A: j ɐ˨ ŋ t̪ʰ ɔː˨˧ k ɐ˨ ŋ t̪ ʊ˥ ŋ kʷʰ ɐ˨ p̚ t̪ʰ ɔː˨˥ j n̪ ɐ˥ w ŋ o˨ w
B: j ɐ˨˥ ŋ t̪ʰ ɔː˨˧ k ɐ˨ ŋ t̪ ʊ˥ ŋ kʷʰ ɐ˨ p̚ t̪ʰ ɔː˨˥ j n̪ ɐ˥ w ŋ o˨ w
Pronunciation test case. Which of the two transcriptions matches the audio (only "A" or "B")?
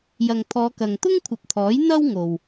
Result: A